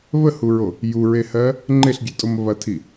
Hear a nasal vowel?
no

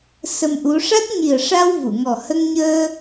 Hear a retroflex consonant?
yes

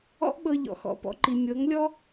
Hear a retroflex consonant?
no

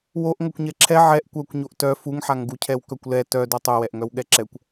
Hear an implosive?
yes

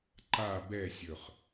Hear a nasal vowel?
no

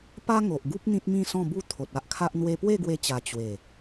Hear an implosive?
no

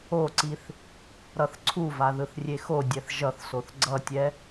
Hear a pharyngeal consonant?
no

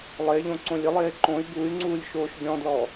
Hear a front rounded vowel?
yes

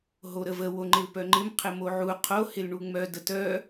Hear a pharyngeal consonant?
yes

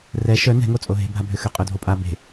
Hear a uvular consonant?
yes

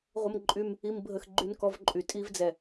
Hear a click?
yes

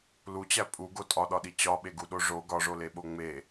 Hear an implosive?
yes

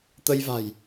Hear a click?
no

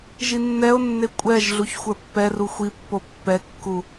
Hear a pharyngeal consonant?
no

